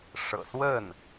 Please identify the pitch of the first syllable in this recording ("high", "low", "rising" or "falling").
low